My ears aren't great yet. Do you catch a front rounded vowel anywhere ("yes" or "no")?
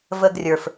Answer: no